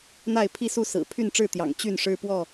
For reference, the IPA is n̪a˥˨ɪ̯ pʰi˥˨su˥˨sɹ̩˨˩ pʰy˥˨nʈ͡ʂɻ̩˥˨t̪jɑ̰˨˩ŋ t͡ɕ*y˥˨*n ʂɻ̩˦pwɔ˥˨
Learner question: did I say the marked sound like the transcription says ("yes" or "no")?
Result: yes